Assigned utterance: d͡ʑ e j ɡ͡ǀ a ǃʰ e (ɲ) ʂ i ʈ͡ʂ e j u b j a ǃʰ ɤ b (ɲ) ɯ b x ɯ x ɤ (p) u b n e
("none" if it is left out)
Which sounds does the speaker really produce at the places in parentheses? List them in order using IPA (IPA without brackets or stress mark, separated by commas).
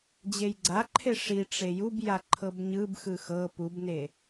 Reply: none, ɲ, p